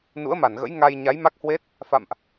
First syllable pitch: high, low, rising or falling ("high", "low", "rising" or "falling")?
rising